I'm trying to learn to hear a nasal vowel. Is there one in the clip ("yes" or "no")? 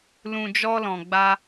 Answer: yes